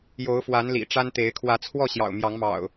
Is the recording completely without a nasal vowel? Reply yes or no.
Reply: yes